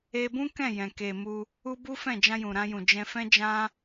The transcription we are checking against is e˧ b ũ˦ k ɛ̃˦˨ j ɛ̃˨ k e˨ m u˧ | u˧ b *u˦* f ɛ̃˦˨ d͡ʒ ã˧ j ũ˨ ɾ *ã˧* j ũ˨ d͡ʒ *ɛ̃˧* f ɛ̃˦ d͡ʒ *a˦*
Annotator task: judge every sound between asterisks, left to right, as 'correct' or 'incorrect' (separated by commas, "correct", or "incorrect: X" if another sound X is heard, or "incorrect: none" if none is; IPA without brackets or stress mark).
correct, correct, correct, incorrect: ã˦